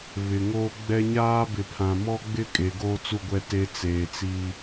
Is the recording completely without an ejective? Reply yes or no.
no